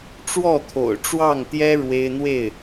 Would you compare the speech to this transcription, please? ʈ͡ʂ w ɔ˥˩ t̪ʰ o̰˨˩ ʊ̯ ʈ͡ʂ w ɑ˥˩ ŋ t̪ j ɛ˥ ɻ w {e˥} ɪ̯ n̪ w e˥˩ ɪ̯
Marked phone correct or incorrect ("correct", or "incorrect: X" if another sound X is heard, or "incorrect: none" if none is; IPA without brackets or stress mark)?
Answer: correct